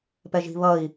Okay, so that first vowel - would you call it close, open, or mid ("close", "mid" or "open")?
mid